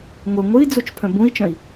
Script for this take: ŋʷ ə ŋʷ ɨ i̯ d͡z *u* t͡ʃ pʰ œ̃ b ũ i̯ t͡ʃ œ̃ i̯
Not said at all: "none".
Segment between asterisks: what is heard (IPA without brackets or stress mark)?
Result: u